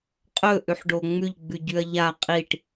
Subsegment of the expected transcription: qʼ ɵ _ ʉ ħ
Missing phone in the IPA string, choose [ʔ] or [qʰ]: ʔ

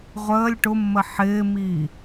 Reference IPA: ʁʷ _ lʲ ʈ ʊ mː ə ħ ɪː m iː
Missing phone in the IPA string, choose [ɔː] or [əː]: əː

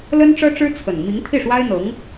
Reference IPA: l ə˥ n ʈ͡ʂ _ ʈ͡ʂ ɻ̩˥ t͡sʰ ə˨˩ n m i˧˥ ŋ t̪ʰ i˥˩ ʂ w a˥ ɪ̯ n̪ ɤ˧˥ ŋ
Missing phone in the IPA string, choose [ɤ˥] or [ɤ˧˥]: ɤ˥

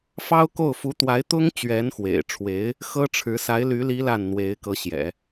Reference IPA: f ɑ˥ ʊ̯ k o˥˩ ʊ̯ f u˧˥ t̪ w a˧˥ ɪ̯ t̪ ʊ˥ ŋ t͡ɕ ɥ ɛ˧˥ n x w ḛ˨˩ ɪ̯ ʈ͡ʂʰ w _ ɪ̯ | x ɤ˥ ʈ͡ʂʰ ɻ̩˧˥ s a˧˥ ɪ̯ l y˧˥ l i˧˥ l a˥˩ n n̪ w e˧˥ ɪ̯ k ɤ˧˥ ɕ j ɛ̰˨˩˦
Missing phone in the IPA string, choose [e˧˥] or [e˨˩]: e˧˥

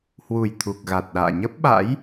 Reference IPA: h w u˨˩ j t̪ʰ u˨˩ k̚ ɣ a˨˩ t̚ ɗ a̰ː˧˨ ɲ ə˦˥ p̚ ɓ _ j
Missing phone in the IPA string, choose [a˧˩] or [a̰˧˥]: a̰˧˥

